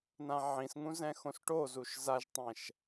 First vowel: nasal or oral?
nasal